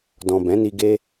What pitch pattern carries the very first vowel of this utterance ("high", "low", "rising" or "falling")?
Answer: low